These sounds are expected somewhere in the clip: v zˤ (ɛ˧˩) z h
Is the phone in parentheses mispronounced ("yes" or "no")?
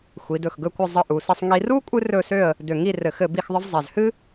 no